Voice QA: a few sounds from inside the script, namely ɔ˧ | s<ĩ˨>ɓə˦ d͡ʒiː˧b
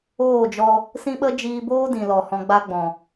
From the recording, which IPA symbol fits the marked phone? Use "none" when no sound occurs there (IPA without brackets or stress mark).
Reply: ĩ˦